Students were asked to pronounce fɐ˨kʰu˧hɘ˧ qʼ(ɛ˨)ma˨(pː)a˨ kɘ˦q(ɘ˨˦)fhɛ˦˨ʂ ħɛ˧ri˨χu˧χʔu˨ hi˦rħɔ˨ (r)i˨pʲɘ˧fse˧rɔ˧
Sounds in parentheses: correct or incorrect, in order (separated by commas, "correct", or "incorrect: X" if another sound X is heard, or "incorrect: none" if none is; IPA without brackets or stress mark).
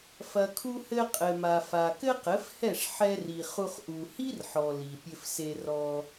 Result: incorrect: ɘ˨, incorrect: f, correct, incorrect: l